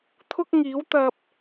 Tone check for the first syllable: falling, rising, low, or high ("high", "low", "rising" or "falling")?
high